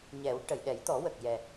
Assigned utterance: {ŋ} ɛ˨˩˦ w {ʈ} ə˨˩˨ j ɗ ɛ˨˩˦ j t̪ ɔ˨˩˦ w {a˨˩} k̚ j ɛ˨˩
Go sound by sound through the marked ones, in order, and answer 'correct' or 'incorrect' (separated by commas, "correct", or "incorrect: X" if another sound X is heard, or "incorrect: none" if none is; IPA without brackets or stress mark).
incorrect: ɲ, correct, incorrect: ə˨˩